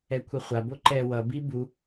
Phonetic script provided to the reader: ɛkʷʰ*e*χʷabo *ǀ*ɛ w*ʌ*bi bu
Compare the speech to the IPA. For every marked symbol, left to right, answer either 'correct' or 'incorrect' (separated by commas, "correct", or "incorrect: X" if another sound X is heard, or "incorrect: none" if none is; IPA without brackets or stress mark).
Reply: incorrect: i, incorrect: ǃ, correct